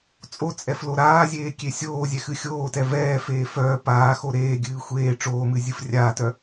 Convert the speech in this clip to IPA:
t͡sʼ o t͡sʼ ɛ f l o ɾ aː zʲ eː kʲ e sʲ oː zʲ ɛ x ɨ xʲ oː t ɛ v ɛː f eː f œː p aː x o ɾ eː ɡʲ ɨː xʷ eː ʈ͡ʂ oː m ɨ zʲ ɨ f rʲ aː t œ

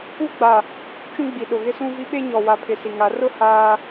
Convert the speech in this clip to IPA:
u˦ ɡ͡b a˨ | t͡ʃ ũ˦ ɡ͡b i˨ ɗ ʊ˨ ɣ ɪ˦ s ũ˦ v i˦ ɓ e˦ ɲ ɔ˨ w a˨ pʰ ɪ˨ s i˨ ŋ a˨˦ r ʊ˦ h aː˦

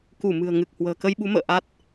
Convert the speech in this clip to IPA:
k u˧˩ m ɨ̤˨˩ ə̯ ŋ ɨ˨˩ k̚ h w ə̤ː˨˩ k ə˧ j ɓ u˨˦ m ə̰ː˧˨ ʔ a˦˥ t̚

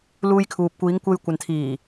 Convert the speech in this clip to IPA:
l uː˧ j kʰ uː˨ p̚ kʷ iː˨˧ ŋ kʷ e˧ j kʷ ɐ˨ n t̪ʰ iː˨˩

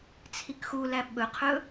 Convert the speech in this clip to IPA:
t͡sʰ i k x u l æ ɓ ɵ qʰ ɵ

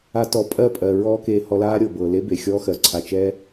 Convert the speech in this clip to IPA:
a˦ t ɔ˧ pʼ ɜ˦˨ pʼ ɜ˨ ɹ ɔː˦ k eː˧ h ɔ˧ l aː˦ ɾʲ ɤ˨ b ɤː˨ l e˦ b e˨ xʲ ɔː˦ x ɜ˨˦ ǀʰ a˧ t͡ʃ ɛ˦

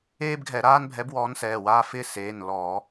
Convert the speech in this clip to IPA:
eː˦ b ɡʱ ɛ˧˩˧ ɾ aː˦ n bʱ ɛ˨˦ b w ɔː˨˦ n s ɛː˩˧˩ w aː˦ f ɪː˦ s eː˩˧˩ n l ɔː˧˩˧

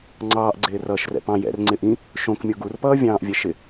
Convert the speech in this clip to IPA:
ŋ͡ǀ ɑː ʔ ɡ͡ǀ ɪː r ʌː ʃ r ɛ̰ p ɑ̃ j ɛ̰ r ŋ͡ǀ ɪ ʔ ĩ | ʃ õ k mʲ o ɡ u r p ʌː vʲ ɑ̃ː ʔ vʲ ɛ ʃ ɪ

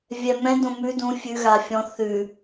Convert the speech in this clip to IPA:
vʲ ɛ m ɛ̃ d õ m ʉ d ũ fʲ ʉ ɣ a fʲ ɔ̃ θ ʉ

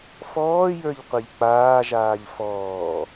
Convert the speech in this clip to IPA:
f ɔː j ə˞ ʎ qʷ e ʎ k͡p aː ʒ aː ʎ f ɔː

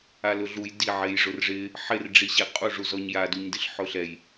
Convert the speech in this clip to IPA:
a l ʊ ɮ u j d i ʕ e j ʐ ʊ r ʐ ɪ | ħ ɪ r ɖ͡ʐ i ɕ e qʼ u ʐ u z ɔ ɲ j a d u ɲ d ɪ ɬ ħ ʊ ɬ ɛ j

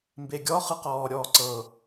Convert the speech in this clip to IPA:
m b e ɡʲ ɔ χ ɯ q ɔː ɾʲ ɔː ǀ ɤ

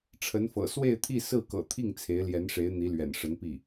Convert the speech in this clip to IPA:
ʈ͡ʂʰ ə˧˥ n f ɤ̰˨˩ s w e˥˧ ɪ̯ t̪ʰ i˥˧ s ɹ̩˥˩ k ɤ̰˨˩ t̪ʰ i˥˩ ŋ t͡sʰ e˧˥ ɪ̯ l j ɛ˧˥ n ʂ e˧˥ ɪ̯ n̪ i˧˥ l ɥ ɛ̰˨˩ n ʂ ə˧˥ n p i˥˩

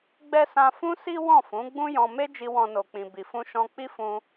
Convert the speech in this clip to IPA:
ɡ͡b ɛ˦ s ã˧ f ũ˦ s i˦ w ɔ̃˦˨ f ũ˨˦ ɡ͡b ũ˦ j ɔ̃˧ m e˦ d͡ʒ i˧ w ɔ̃˦ n o˧ k͡p ĩ˧ b i˨ f ũ˧ ʃ ɔ̃˧ k͡p i˦ f ũ˧

